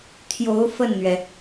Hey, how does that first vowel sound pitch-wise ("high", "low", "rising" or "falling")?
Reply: rising